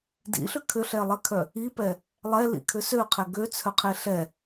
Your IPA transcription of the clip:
dḭɬʏ kʰʏɬɛlˠɛkʰœ | ipɛ | lˠɛlḭkʰʏ søqʰɛ ɡøt͡sʰœqʰe ɬɛ

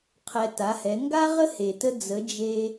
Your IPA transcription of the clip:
qʰɛ˧ta˨˦hɛ˨˦ ŋɡa˦ʁə˦ he˨tə˦ d͡zə˨˦ d͡ʒe˧

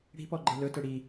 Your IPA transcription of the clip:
ɽi̤pɔɡ͡ǃe lɵtɵ ɽi

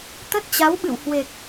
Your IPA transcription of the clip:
t̪ə˦˥t̚t͡ɕa˨˦wɓɨ̰˧˨whwe˨˩k̚

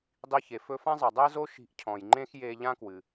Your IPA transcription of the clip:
dˤi˧çe˩ fɵ˧ fã˥zˤɛ˩ dˤɛ˥zo˥ ʃi̤˧ʔcʰɔ̃˩j ŋ͡ǃẽ˥xje˧ ʎã˥kwɨ˩

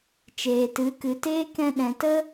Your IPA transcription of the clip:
t͡ʃeː˨tɨ˨˦kɨ˨teː˦ kɛ̃˧ɗɛ̃˨tə˦

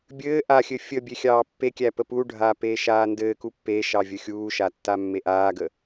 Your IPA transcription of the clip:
bʲɘː ʔaxʲɘ fʲəbʲexʲɑː pːekʲæpə puɖʱaːpeːʃaː ndɘːku pːeʃɑvʲə xʲuːʃatːamːe ʔaːɡə

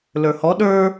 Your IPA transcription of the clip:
lə˞hɔ ɗə˞

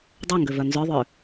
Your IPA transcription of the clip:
dˤœŋɡø vœnzœðˤʏː

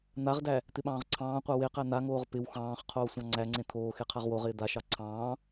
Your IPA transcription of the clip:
n̪aʁdæ | t̪ɪɓɑ̃ːʁǀʰɑ̃ːqʷa weqæ n̪aŋoːʁ pɪw xɑ̃ːχ qʰoːsʷɑ̃ŋ͡ǀæŋ͡ǀẽ t̪ʰoːxe qʰaʁwoʁɪː d̪aʃɑ ǀʰɑ̃ː

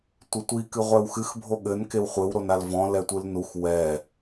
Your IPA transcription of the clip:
tʷɘtʷi kɨʁʷɛwxɨx bʱoɠɘn kewχʷɘw ɾonalvɔ̃ lɛtʷɨlnux wɛ

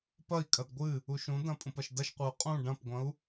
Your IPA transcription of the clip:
pɐi̯kʼɐd ɡʷɨ | uʃũdɐ̃ pʼũpɐʃdɐʃqʷɨu̯ qʼũ ɖɐ̃pɡʷɐ̃u̯

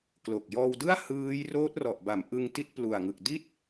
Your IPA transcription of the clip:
klo˨˩k̚jɔː˧wdɯ˥˩a̯ hɯː˦˥j roː˦˥t̚rɔ˨˩ʔba˩˦m ʔɯ˧ŋti˦˥t̚plu˨˩a̯ŋɯ˨˩k̚ di˥˩t̚

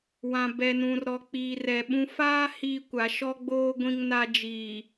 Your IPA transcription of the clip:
wã˨ bɛ˨nũ˨rɾɔ˨ k͡piː˨rɛ˨ɓũ˦ faː˦ hiː˦kʷa˨˦ ʃɔ˦ɡ͡boː˦ ɡʷĩ˦ŋna˦ d͡ʒiː˨

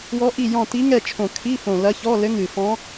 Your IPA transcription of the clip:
wɔ˧˥ʔi˦˨ jɔ̃˦˨ ti˧˥ŋɛ˦˨t͡ʃʰõ˨˩ kʰi˧˥˧fõ˨˩lɐ˧˥çɔ˧˥˧ lɘ˧˥ŋɨ˨˩fɔ̃˧˥

